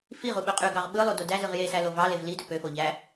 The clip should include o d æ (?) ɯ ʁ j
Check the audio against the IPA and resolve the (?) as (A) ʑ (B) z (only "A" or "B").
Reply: B